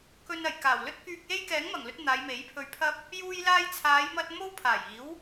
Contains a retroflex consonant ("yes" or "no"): no